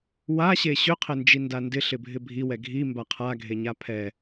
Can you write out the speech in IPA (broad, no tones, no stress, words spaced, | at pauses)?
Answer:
waɕe ɕʏqʰɪnd͡ʒinda ndɪɬɪbʱɪ bʱiwɛ ɡʱimba qʰaɡʱeɲa pʰɛ